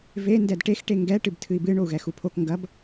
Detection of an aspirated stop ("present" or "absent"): present